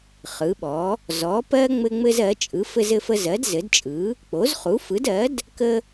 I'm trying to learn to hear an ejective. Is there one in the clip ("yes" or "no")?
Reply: yes